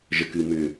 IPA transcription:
ʒəkɨ mʏ

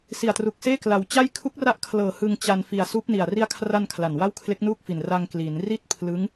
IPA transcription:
si˨˩a̯tru˨˩k̚seː˥˩ kla˩˦wt͡ɕa˥˩j kʰu˦˥k̚ra˦˥ʔkʰlɤː˨˩ hɯ˧ŋt͡ɕa˧n fi˨˩a̯suː˦˥p̚ni˨˩a̯ ri˧a̯kʰra˧n kʰla˨˩nwa˥˩w kʰle˦˥k̚nuː˥˩k̚fi˨˩n ra˧ŋkli˩˦nri˥˩t̚ pʰlɯ˦˥ŋ

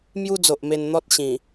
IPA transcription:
mju˦d͡zo˨ʔme˧nn̪ɔ˦t̚ ɕĩ˨˩

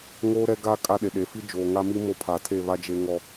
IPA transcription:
ŋoː˦ɾɛ˦ ɡa˦ kʼa˦ɗe˨ ɗe˨fi˦ d͡ʒoː˨ŋa˦mi˦ mo˦pʰa˨tʰe˦˨βa˦ d͡ʒe˦ŋɔ˦

